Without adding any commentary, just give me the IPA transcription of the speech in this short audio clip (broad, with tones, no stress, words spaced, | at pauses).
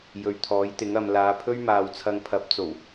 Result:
jɵ˨ɥt̪ʰɔː˨˥jt̪ɪ˨˥ŋɐ˨˧m laː˨˧pʰɵ˥ɥmaː˨wt͡sʰɐ˧ŋ pʰɐ˨˥p̚ t͡so˨˩w